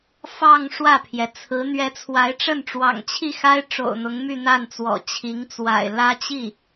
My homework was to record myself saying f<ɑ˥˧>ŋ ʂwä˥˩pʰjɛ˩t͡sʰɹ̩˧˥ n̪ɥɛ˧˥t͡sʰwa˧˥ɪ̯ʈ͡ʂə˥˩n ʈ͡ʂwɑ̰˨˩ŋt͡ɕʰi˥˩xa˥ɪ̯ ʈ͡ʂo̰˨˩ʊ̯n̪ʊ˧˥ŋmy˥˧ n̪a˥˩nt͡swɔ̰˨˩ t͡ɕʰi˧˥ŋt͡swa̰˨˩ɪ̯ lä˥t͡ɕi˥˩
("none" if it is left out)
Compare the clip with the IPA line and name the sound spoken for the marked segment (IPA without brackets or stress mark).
ɑ˥˧